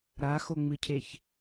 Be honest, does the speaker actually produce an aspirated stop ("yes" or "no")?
yes